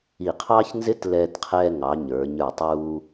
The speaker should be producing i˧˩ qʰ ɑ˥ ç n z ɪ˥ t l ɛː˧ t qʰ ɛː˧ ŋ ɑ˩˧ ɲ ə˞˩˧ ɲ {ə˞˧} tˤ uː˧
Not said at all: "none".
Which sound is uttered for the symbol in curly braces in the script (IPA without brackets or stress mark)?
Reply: ə˞˧˩